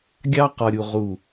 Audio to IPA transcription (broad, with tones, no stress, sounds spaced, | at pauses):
ɡʲ ɑ˦ q ɒ˨ ɾʲ u˨ ʁ u˨